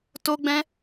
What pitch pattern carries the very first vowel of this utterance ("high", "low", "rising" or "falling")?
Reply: high